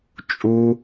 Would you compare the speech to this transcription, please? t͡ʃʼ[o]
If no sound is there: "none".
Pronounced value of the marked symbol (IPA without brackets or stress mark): u